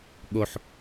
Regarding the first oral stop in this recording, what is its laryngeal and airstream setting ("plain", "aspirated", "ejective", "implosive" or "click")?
implosive